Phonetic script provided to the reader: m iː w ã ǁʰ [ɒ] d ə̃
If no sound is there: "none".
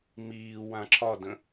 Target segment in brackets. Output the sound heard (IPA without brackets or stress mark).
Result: ɒ